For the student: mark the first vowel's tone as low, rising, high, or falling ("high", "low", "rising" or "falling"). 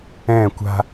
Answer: falling